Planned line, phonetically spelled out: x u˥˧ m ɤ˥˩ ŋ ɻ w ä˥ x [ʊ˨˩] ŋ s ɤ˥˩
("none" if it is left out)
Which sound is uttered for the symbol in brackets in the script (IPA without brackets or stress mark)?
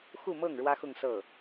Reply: ʊ˥˧